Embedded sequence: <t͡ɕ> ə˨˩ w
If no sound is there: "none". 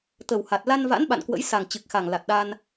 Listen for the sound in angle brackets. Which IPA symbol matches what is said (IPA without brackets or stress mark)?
t̪